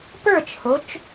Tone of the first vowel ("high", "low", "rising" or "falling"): falling